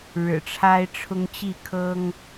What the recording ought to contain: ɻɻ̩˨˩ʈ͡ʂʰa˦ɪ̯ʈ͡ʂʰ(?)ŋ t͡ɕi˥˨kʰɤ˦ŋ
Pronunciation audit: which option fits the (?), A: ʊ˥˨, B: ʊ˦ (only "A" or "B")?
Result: B